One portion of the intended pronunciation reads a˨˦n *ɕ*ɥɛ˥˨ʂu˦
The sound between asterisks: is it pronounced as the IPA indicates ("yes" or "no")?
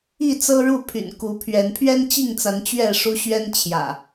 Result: no